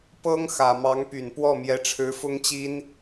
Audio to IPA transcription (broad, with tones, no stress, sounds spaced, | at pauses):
p ɤ˥ ŋ x ä˨˩ m ɑ˧˥ ŋ p y˨˩ n p w ɔ˥˩ m j ɛ˧˥ ʈ͡ʂʰ ɻ̩˧˥ f ʊ˥ ŋ t͡ɕ i˥ n